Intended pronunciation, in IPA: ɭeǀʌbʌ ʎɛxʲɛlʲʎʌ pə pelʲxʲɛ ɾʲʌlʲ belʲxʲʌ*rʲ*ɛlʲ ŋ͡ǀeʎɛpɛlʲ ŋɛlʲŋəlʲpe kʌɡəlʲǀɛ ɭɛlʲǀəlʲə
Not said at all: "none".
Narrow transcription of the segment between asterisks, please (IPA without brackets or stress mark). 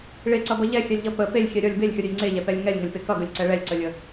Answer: ɾʲ